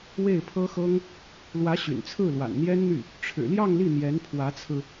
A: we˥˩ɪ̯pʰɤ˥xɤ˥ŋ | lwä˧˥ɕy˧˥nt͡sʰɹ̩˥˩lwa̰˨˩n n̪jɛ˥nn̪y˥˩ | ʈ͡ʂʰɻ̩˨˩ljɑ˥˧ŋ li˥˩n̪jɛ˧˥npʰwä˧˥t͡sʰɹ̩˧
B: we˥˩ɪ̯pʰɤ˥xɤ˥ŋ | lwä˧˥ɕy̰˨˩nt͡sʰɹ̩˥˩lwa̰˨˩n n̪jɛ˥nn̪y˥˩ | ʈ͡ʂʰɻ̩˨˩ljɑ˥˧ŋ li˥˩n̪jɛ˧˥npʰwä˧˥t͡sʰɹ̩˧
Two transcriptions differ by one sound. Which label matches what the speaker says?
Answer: B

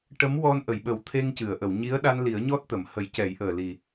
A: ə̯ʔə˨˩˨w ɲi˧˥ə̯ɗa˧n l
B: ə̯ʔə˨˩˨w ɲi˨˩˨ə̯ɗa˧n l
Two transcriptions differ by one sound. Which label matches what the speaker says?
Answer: A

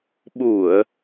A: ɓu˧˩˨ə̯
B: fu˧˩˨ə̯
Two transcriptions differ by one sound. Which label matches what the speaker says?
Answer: A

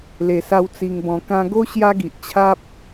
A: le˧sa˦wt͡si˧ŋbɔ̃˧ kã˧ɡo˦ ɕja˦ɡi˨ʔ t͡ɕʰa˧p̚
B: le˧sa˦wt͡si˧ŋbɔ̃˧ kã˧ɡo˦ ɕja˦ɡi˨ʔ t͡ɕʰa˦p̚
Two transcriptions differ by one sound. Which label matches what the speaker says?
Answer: B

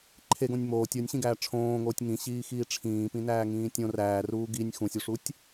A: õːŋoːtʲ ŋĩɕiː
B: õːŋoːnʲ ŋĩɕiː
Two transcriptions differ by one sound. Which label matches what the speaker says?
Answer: A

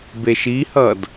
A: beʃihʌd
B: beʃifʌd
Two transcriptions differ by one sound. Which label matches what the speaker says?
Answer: A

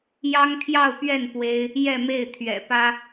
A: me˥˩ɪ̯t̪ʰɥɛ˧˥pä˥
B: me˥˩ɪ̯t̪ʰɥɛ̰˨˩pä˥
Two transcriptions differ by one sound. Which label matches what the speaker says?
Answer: B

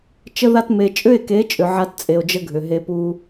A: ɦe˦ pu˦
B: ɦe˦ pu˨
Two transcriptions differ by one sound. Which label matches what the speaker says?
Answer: A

